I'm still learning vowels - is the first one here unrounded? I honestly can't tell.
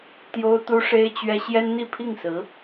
no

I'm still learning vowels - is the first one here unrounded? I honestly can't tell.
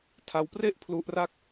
yes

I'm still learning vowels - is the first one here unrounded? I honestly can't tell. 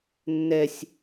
yes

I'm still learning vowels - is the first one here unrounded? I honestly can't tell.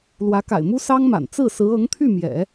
yes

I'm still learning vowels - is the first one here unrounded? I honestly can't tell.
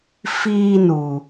yes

